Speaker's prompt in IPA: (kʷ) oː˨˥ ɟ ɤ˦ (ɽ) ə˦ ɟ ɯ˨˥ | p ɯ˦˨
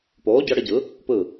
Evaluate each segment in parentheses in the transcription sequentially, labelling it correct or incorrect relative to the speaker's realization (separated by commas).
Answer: incorrect, correct